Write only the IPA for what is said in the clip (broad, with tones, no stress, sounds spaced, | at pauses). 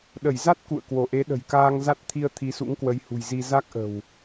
ɗ ə˧˩ j z a˦˥ t̚ k ṵ˧˨ ə̯ k w o˧˩ ʔ e˨˦ ɗ ə̤˨˩ j k aː˧ ŋ z a˦˥ t̚ t̪ʰ i˧ ə̯ t̪ʰ i˨˦ s ṵ˧˥ ŋ k w ə˨˦ j h ṳ˨˩ j z i˧ z a˦˥ k̚ ʔ ə̤˨˩ w